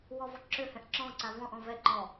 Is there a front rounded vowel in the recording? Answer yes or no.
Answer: yes